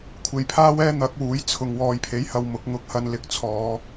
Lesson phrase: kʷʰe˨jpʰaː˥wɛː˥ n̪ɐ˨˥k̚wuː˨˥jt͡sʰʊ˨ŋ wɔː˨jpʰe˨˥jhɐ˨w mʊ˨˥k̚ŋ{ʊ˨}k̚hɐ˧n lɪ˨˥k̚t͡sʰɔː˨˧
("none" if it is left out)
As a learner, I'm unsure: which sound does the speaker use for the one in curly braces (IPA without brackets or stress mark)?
ʊ˧